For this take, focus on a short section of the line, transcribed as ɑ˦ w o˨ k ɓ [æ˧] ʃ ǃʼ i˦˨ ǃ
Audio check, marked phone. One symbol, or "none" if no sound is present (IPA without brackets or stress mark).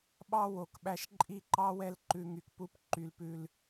æ˧